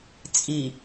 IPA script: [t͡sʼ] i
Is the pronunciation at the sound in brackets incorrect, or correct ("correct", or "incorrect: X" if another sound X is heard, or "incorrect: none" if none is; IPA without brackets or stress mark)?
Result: correct